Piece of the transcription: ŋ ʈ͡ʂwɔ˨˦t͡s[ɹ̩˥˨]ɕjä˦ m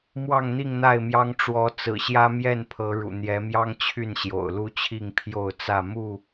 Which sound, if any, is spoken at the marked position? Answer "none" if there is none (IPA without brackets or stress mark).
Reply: ɹ̩˨˩